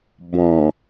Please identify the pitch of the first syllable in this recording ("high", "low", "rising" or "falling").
low